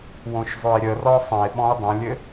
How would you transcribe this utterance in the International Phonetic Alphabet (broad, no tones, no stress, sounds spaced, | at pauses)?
w õ ʃ zˤ o e̯ ɾʲ ə r ɔ sˤ ə̃ e̯ ɓ ɔ̃ e̯ dˤ ə̃ lʲ ɘ